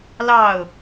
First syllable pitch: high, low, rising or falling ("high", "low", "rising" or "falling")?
falling